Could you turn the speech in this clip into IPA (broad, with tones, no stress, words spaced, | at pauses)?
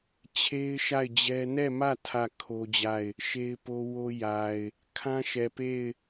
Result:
t͡ɕʰe˦ɪ̯ ʃa˦˨ɪ̯d͡ʑɛ˦ nɛ˦˨mä˦˨ tʰä˦˨ kʰo˦d͡ʑa˦˨ɪ̯ | ʃe˦ɪ̯po˦ wo˦ja˨ɪ̯ | kʰã˦ʃɛ˨pe˦˨ɪ̯